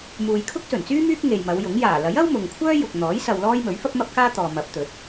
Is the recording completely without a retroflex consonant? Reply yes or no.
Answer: yes